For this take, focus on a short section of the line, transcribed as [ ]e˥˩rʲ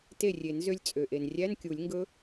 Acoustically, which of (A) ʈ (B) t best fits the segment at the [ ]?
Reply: B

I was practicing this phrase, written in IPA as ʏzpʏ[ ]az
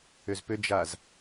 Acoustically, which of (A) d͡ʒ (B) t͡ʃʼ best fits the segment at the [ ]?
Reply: A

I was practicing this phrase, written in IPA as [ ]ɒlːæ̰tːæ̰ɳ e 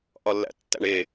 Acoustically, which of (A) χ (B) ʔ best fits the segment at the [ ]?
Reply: B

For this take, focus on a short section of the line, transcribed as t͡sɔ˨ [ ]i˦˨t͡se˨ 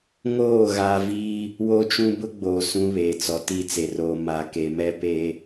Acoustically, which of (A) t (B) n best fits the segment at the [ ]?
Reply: A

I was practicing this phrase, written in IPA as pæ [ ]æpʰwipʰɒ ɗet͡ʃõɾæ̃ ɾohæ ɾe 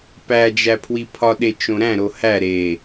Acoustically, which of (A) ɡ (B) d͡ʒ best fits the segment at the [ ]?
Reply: B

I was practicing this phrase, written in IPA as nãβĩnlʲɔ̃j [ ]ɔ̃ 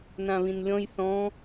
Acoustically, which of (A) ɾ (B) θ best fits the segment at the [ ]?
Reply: B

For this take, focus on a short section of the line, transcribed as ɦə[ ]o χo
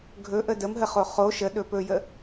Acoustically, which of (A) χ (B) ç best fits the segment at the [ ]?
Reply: A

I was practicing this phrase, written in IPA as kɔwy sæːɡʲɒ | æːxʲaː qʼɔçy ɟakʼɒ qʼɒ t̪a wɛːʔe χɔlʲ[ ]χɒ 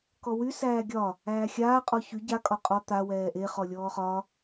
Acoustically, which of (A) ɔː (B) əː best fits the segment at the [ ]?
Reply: A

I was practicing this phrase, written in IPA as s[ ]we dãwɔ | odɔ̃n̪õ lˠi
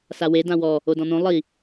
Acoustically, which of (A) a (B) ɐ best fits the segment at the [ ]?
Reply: A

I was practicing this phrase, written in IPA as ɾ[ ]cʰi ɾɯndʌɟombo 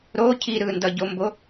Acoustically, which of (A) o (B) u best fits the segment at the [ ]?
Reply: A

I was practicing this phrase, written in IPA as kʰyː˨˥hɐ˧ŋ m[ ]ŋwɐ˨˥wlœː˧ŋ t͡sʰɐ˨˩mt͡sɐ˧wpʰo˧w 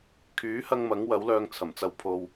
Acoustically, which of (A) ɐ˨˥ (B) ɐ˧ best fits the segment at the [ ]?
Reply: A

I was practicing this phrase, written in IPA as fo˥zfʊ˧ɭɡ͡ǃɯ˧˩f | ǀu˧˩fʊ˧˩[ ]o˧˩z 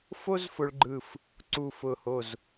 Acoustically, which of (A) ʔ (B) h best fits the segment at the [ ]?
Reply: B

